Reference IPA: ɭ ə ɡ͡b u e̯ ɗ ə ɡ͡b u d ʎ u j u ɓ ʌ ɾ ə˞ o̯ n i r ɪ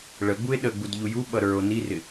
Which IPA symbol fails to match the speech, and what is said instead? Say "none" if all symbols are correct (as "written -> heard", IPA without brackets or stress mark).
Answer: none